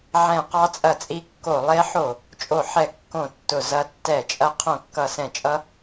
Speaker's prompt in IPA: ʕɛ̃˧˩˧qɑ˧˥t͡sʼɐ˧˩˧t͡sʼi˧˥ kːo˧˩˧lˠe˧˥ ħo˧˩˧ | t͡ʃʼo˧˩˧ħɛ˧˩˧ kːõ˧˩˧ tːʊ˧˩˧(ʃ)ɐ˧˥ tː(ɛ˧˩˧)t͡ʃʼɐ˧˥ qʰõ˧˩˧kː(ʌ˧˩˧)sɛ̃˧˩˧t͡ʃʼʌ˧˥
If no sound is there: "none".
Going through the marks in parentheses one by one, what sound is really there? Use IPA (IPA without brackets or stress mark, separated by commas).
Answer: z, ɛ˧˩˧, ʌ˧˩˧